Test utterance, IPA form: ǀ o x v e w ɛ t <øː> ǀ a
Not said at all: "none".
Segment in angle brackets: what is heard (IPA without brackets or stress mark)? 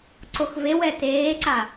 eː